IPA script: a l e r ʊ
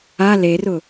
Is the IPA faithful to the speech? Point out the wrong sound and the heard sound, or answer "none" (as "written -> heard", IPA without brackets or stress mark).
none